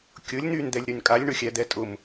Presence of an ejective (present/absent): present